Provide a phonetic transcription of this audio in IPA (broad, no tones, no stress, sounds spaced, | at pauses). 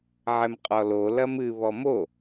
ʕ ɛ m qʼ ɔ l o l ɐ m ɨ β ɔ m o